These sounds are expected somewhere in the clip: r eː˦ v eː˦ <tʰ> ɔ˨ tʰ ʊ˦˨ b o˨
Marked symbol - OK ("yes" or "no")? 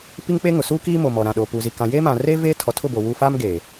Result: yes